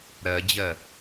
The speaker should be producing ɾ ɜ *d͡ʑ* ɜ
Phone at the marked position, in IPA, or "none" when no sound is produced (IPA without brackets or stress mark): d͡ʑ